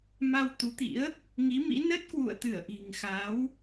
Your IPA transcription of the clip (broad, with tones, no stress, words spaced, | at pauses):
ma˧wt̪u˨˦t̪ḭ˧˥ə̯ | ŋi˨˦mḭ˧˥ nə˦˥t̚kwṵ˧˨ə̯t̪ɨ˧˩ə̯ ʔi̤˨˩ŋxa˨˦w